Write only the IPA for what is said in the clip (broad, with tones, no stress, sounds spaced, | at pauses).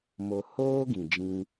m o˧ h oː˦ ɡ ĩ˧ d͡ʒ ĩ˦